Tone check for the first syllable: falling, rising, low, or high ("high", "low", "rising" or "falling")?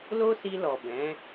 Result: high